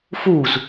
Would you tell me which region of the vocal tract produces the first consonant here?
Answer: lips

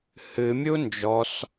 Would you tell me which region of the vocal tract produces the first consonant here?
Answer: throat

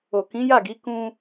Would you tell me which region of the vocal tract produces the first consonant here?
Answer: velum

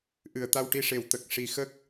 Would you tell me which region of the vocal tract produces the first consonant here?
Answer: throat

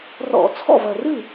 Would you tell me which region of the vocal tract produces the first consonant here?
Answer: tongue tip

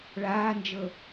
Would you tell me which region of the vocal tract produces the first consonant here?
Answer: retroflex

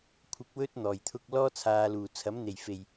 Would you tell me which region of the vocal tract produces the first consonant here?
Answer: velum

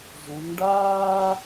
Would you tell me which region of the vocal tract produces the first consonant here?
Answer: tongue tip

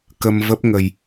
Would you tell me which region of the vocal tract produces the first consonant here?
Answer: velum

